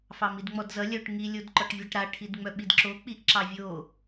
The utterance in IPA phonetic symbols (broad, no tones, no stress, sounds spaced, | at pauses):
f ɑ m i d ŋ͡m ɔ d z ʌ lʲ œ ʈ ŋ i lʲ o d ǃ ɔ ʈ vʲ a ʈ ɾ a ʈʰ i d ŋ͡m œ ɓ i d ǁ o k͡p i ʔ ǁ ɑ vʲ o